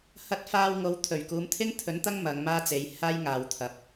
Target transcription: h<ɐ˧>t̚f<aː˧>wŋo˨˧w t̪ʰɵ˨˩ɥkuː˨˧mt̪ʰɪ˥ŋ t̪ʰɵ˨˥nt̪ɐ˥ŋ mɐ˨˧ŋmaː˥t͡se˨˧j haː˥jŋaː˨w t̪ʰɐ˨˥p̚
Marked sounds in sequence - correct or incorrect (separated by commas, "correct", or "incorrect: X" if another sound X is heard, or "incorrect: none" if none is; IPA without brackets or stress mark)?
correct, correct